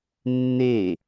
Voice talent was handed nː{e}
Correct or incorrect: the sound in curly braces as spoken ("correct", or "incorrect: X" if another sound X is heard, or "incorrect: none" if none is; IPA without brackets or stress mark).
correct